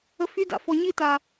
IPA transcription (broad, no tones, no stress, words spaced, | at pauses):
əfyda̰ fɔɲita